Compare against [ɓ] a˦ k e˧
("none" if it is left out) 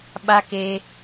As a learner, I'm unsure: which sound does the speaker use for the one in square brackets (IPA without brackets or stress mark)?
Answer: ɓ